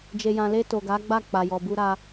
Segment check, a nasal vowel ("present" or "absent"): present